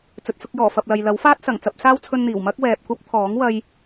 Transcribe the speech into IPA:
t͡s ɵ˨ t̚ s ʊ˧ k̚ j ɔː˨˩ f ɐ˨ p̚ l ɐ˨ j l ɐ˨˥ w f aː˥ t̚ s ɐ˨˩ ŋ t͡s ɐ˧ p̚ s aː˥ w t͡sʰ ɵ˧ n n̪ iː˨˩ w m ɐ˥ k̚ w ɛː˨ p̚ kʷ ɐ˥ p̚ t̪ʰ ɔː˨˥ ŋ w ɐ˥ j

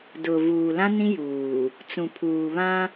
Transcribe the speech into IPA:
d ʊ˨ v uː˨ l ã˦ n ĩ˦ j uː˨ | t͡s ũ˨ pʰ uː˨ β ã˦

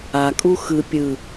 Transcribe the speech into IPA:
a kʼ u x ɯ pʲ ɯ

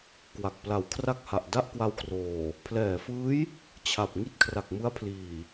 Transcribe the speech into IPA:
k w a˨˩ k̚ p l a˩˦ w kʰ r a˥˩ k̚ h a˨˩ ʔ d a˥˩ ʔ k w a˧ w k r oː˨˩ | pʰ l ɛː˨˩ f ɯː˦˥ j | t͡ɕʰ a˨˩ p̚ ŋ i˥˩ t̚ kʰ r a˨˩ k̚ m ɯ˦˥ a̯ pʰ l iː˨˩

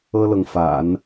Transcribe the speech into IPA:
ɤ˥ l ɤ˨ ŋ f a̰˨˩˦ n

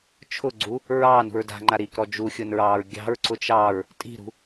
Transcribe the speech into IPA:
t͡ʃʰ ʊ ɡ͡ǀ u | ɹ ɑː n ṳ ɹ d a̤ ŋ͡ǃ a ɾ iː k ɾ ɔ d͡ʒ u xʲ ʊ n ɹ ɑː ɹ ɡʲ ɑ̤ ɹ ǀ ʊ t͡ʃ ɑ ɹ | tʼ i̤ ɾ ṳ

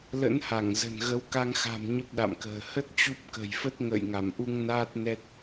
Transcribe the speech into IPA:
l ə̰˧˥ n h a˧˩ ŋ z ə̤˨˩ n ɣ ə˨˦ w k a˧ ŋ x a̤˨˩ m ɲ ə˦˥ p̚ ɗ a̰˧˨ m k ə̤ː˨˩ h ə˦˥ t̚ t͡ɕ u˦˥ p̚ k ə̤˨˩ j f ə˦˥ t̚ ŋ ə̰ː˧˨ j ŋ a˧˩ m ʔ u˧ ŋ n aː˦˥ t̚ n ɛ˦˥ t̚

